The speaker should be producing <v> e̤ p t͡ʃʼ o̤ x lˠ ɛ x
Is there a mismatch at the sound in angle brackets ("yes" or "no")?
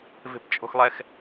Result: no